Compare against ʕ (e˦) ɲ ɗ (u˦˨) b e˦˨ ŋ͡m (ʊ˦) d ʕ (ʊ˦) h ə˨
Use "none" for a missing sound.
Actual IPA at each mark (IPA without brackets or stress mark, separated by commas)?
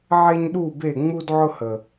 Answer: e˦, u˦˨, u˦, ʊ˦